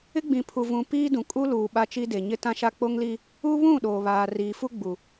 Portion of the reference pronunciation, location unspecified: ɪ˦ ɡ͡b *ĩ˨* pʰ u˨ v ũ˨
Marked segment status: correct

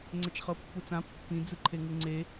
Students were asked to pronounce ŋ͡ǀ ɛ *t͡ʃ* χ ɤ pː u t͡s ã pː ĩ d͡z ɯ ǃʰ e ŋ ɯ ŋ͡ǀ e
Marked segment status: correct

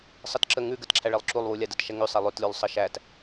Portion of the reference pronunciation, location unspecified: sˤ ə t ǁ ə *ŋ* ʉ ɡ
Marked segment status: correct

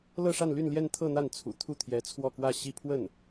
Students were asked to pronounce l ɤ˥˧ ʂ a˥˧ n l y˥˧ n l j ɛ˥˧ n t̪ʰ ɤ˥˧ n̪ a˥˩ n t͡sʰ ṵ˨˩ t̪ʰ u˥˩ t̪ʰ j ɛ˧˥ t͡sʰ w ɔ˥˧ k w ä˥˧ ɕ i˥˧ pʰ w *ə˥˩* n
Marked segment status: correct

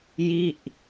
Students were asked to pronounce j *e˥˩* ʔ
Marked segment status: incorrect: i˥˩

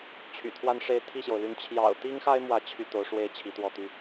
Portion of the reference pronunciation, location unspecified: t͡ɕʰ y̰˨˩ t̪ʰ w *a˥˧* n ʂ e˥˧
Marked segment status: correct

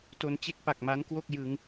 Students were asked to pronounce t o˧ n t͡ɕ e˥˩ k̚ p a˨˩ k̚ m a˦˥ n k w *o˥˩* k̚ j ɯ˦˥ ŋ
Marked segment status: correct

